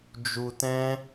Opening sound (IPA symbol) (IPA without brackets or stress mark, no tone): d͡ʒ